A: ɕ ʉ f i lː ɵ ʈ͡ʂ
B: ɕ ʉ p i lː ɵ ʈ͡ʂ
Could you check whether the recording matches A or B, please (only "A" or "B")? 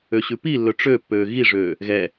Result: B